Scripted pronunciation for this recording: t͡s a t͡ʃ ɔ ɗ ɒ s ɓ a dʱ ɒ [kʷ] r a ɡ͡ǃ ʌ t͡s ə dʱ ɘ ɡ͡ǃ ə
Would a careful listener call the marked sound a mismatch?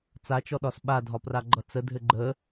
yes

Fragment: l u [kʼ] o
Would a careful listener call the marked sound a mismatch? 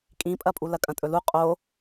yes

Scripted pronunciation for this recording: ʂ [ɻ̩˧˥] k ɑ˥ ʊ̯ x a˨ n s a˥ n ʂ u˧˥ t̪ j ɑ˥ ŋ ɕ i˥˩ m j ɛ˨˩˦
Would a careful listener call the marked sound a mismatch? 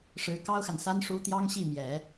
no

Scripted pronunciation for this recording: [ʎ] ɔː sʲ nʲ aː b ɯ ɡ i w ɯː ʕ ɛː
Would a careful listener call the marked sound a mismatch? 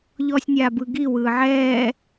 no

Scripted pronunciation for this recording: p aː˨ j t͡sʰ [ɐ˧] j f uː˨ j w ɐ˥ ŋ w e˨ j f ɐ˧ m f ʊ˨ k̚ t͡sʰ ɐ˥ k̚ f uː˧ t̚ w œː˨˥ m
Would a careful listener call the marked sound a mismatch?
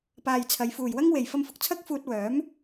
yes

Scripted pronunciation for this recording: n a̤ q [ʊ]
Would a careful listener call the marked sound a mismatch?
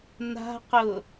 no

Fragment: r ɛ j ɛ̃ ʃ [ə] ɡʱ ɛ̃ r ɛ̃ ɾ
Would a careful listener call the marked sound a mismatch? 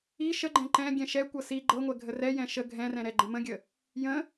no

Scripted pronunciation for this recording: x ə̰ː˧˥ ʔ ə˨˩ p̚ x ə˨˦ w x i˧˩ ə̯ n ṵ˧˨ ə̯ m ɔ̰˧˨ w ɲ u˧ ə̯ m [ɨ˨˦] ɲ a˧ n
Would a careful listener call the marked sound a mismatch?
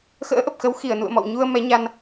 yes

